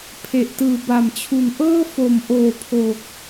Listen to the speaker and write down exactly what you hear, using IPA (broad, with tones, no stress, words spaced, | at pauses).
pʰe˨˩ʔtɯː˨˩ba˨˩mt͡ɕʰu˨˩n ʔɤː˥˩fo˨˩mʔoː˨˩ pʰo˨˩k̚